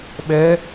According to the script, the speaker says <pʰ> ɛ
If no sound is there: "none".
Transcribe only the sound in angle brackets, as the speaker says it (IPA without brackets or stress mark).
ɓ